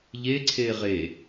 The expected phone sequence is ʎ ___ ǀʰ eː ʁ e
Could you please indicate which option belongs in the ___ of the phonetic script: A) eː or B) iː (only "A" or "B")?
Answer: A